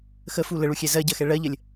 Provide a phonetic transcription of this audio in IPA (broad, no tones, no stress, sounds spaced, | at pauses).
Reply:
x ə f u l ə ɭ u xʲ ɛ z ɜ ɟ ɜ x ɛ ɭ ɜ ʎ ə lʲ